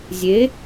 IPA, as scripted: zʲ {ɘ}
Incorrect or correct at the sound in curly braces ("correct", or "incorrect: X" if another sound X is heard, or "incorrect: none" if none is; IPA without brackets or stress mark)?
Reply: incorrect: e